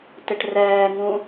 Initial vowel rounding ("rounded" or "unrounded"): unrounded